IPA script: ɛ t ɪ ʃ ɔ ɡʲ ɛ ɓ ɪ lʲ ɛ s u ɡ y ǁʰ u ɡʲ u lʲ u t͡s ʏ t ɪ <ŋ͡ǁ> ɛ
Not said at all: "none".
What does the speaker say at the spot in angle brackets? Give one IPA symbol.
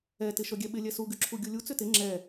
ŋ͡ǁ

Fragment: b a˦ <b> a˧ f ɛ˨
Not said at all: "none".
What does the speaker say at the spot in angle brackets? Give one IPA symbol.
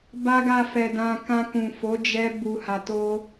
ɡ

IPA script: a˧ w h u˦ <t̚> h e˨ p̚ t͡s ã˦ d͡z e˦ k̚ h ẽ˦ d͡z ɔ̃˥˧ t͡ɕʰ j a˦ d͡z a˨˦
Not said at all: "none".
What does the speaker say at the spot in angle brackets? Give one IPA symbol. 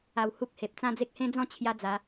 k̚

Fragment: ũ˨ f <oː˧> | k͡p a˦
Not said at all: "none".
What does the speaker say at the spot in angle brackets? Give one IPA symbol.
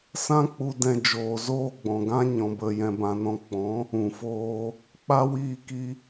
oː˦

